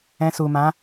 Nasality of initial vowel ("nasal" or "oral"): nasal